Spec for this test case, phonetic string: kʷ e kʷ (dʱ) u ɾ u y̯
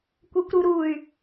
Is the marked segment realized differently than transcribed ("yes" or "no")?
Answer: yes